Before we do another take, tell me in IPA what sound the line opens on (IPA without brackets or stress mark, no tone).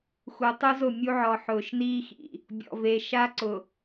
x